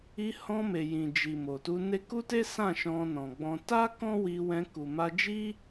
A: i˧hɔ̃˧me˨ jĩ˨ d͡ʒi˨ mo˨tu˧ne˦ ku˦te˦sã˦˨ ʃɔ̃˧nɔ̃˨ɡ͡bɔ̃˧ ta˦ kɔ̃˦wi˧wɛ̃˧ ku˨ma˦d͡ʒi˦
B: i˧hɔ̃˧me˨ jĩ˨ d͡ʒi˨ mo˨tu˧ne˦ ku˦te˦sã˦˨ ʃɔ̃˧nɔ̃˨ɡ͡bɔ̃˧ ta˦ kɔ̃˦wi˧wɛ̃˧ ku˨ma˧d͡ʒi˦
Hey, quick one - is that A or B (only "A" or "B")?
B